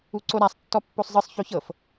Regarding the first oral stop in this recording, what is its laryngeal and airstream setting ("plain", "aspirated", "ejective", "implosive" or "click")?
click